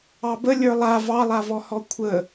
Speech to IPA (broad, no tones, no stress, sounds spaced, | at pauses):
ɑ b ə lʲ ə˞ lˠ a v ɑ lˠ a v ɔ h ɔ kʷʰ ə